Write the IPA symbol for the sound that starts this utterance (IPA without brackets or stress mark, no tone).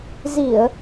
z